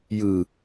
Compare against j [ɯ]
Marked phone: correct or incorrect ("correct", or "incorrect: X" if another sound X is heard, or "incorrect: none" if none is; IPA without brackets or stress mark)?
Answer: correct